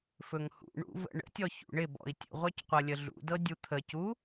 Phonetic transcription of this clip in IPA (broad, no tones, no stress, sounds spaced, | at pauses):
f ɵ ŋ h ṵ ɳ ṵ v ə̰ ɳ ə̰ tʲ ɔ ç ṵ ɳ ɪ b ɔ̰ i̯ tʲ ə̰ ʁʷ œ c qʷ ɤ lʲ ə ɮ ṵ d ɤ dʲ u t̪ʰ ə c u